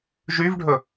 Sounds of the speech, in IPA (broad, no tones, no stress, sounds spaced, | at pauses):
ʒ y v ɖʱ ɵ